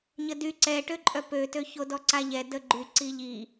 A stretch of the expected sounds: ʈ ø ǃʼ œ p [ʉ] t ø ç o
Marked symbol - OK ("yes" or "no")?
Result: no